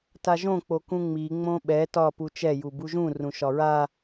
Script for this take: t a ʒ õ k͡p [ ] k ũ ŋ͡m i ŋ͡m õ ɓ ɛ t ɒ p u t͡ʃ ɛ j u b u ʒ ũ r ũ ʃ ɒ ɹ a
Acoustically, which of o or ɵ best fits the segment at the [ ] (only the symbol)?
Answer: o